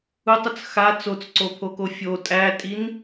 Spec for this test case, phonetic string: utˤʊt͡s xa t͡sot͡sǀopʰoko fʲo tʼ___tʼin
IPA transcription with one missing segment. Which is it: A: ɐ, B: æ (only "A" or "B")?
B